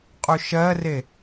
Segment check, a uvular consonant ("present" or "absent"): present